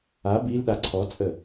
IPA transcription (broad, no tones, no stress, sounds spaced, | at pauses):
a b i l ɗ a ǀʰ ɔ t͡sʼ ə